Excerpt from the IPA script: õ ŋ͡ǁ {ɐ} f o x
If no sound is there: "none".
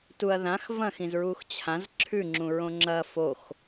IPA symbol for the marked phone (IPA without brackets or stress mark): ɐ